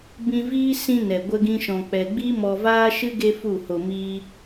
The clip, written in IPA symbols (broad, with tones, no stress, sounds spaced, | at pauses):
b ĩ˧ v iː˦ s ĩ˧ n ɛ˨ ɡʷ ə˦ ɡ ĩ˦ ʃ ɔ̃˧ k͡p ɛ˧ ɡ͡b i˦ m ɔ˧ v aː˦ ʃ ɨ˦ ɡ e˦ f u˦˨ h o˧ m iː˦